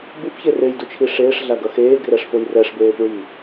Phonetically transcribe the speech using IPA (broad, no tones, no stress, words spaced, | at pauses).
bupçe rejdut͡ʃʰi ʂeːʂɮaɡʌ xeːɡrɛʂfoj rɛʂbeːpɹiː